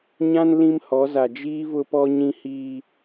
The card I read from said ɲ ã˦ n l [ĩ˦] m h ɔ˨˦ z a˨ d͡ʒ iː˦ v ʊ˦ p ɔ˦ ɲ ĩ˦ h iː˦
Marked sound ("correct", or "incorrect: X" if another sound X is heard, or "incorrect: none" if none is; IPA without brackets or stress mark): correct